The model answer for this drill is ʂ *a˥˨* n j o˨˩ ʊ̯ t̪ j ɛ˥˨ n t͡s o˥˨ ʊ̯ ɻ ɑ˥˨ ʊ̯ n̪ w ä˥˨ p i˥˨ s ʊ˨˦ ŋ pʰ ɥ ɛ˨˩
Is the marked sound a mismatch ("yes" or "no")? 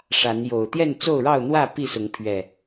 yes